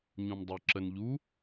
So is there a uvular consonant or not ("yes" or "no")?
no